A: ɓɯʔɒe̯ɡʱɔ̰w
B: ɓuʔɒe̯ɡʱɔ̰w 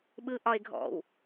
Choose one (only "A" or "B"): A